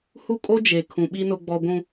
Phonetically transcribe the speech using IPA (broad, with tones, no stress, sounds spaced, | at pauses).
h u˦ kʼ o˦ d͡ʒ e˨ kʰ ũ˨ ɓ i˦ n ʊ˦ ɡ͡b ɔ˦ ɡʷ ũ˦